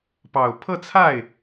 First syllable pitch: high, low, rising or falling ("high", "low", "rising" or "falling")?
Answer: low